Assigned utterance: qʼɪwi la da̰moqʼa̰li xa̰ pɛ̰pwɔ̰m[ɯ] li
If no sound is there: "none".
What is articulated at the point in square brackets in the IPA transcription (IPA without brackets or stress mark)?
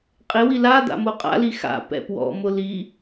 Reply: ʊ